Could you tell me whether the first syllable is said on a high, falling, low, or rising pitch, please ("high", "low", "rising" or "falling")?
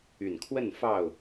low